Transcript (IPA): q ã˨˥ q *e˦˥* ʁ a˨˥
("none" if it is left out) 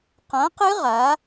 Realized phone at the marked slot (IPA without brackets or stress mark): ɨ˦˥